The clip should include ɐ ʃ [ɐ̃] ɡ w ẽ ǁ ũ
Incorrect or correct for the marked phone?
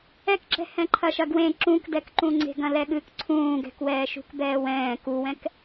incorrect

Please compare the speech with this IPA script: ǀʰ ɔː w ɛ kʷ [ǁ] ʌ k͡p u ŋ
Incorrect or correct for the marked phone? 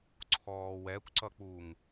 incorrect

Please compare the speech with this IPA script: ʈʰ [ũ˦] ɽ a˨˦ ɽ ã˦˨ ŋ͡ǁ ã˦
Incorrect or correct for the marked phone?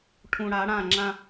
incorrect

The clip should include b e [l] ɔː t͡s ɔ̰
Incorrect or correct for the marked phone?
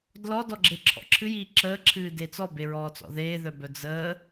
incorrect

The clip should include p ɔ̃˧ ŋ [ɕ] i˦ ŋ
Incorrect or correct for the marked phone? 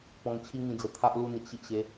incorrect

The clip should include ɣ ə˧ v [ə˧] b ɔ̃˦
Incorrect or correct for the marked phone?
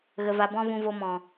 incorrect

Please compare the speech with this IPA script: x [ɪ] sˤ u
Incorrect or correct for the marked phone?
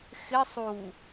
correct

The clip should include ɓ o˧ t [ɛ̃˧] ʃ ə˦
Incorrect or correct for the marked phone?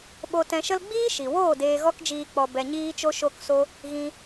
correct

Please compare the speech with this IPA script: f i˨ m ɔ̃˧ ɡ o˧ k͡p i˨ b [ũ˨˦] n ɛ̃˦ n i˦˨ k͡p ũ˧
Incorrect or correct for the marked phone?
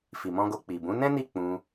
correct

